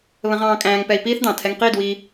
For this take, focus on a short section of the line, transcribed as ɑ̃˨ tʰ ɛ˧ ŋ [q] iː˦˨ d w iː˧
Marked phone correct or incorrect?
correct